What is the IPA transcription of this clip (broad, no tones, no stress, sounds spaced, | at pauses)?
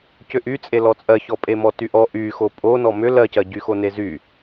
c ʏ ʔ y t͡sʼ e l ɔ t͡sʼ ɜ ç ɔ pʼ e m ɔ t y ʔ ɔ ʔ y x o pʼ o n ɔ m ʏ l ɜ c ɜ ɟ y x o n e z y